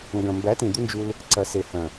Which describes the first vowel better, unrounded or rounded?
unrounded